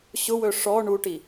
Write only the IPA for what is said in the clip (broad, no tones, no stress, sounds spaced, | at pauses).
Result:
ɕ ʊ w ɵ ʂ ɔ ɳ u ʈ i